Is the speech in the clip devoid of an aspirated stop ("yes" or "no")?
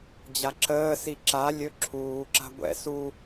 no